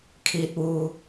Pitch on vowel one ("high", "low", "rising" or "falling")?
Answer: low